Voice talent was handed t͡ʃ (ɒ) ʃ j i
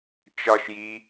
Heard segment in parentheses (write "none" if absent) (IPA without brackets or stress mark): ɒ